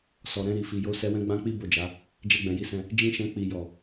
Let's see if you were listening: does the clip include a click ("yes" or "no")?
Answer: no